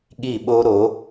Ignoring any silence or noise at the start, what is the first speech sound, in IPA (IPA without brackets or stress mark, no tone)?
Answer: ɠ